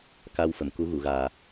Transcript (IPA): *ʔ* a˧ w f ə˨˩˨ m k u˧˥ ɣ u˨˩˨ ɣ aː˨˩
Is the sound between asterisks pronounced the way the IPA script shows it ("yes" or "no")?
no